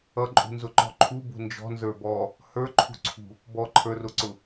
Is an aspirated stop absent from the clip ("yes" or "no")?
no